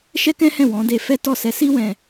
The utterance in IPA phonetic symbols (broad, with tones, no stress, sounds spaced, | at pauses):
ʃ ɛ˦ k ɛ̃˦ h ɛ̃˦˨ w ɔ̃˨˦ d e˧ f ɛ˦ t ɔ˦˨ s ɛ˧ s i˦ w ɛ̃˧